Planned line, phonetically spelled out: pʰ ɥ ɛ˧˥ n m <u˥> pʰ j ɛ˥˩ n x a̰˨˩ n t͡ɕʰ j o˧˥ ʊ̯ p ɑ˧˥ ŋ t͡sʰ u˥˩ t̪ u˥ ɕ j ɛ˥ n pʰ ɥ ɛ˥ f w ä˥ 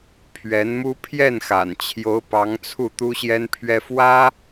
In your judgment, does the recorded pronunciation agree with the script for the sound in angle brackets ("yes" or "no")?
yes